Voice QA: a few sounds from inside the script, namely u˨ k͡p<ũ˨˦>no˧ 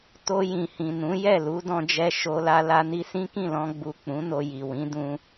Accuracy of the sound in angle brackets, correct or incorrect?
correct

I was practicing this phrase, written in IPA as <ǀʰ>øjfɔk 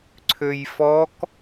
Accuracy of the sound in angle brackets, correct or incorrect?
correct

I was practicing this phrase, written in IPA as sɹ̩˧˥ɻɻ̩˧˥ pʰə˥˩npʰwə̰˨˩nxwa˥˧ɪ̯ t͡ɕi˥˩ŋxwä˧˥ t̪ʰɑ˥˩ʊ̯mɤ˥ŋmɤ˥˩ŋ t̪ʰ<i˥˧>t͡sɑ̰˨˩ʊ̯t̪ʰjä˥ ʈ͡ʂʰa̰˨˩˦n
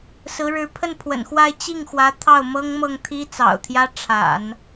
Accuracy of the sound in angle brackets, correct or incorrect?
incorrect: i˥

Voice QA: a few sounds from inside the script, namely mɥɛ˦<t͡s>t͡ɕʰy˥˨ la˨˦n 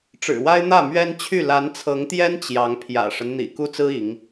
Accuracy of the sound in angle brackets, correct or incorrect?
incorrect: n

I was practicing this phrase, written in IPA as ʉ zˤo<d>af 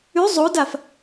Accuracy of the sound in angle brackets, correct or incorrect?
correct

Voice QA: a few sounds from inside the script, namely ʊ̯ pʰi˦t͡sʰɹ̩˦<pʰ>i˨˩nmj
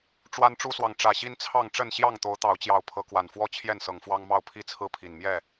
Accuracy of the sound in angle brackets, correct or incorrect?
correct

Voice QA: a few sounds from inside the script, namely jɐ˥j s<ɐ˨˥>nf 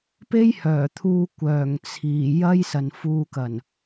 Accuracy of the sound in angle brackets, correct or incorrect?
incorrect: ɐ˨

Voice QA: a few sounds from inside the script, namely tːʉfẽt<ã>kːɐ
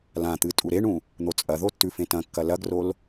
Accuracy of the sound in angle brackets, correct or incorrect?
incorrect: ɐ̃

